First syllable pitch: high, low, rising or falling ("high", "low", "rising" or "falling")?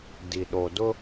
low